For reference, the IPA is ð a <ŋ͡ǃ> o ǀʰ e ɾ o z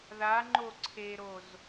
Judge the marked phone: correct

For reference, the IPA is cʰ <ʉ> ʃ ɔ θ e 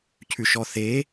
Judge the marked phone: correct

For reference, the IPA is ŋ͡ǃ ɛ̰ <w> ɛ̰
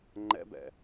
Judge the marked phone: incorrect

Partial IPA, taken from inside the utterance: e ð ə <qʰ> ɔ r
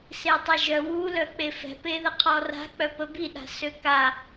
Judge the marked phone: correct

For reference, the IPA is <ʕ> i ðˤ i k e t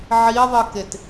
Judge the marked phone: correct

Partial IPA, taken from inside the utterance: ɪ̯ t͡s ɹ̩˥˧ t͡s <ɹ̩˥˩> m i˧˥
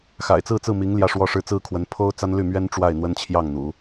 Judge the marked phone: correct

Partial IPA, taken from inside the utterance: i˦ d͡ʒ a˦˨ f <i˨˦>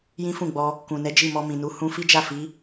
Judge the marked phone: correct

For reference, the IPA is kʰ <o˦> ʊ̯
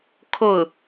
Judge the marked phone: incorrect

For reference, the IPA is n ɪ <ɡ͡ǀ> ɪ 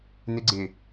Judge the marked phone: correct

